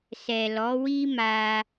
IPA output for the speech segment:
sɛ˨lɔ˨˦wi˦ma˧

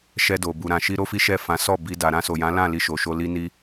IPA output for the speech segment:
ʃɛ˧do˨ bu˨ɾã˨ʃi˧ ɾo˦fi˦ʃɛ˦˨ fã˨˦sɔ˦˨bi˧ da˨ɾã˧so˨jã˨˦ lã˦˨li˧ʃo˨ ʃo˧li˦ni˦

